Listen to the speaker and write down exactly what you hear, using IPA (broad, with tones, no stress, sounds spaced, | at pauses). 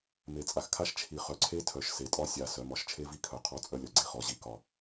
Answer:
m e˨ t͡sʼ a˨ x kʰ a˦ ʃ t͡ʃʰ i˨ χ œ˨ ǀʰ e˦ tʰ œ˨ ʃ s e˨ tʼ ɒ˦ sʲ a˨ s œ˨˦ m ɒ˨ ʃ t͡ʃʰ e˦ v i˦ kʰ œ˨ qʰ ɔ˦ t͡sʼ œ˦ lʲ ɒ˨ ɡ͡ǀ i˦ χ ɔ˨ ʑ i˦ k ɒ˦